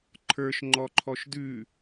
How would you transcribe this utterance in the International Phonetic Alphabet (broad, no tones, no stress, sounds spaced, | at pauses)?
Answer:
ǃʰ ə˞ ʃ ŋ͡ǃ ɔ ǃʰ ɔ ʃ d ʉ